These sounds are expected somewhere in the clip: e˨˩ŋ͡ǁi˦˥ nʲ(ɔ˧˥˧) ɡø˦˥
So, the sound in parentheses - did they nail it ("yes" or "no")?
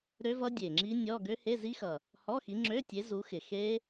yes